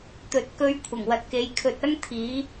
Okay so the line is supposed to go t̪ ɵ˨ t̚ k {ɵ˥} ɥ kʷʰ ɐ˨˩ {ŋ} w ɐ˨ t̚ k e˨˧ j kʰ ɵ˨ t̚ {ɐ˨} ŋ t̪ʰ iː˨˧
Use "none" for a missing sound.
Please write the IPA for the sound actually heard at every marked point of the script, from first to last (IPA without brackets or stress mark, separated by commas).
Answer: ɵ˧, ŋ, ɐ˥